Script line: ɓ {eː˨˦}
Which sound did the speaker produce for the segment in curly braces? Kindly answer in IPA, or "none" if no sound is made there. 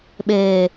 eː˨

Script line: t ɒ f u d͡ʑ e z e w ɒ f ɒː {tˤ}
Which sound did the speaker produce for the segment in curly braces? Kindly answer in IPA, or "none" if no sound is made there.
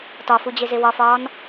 n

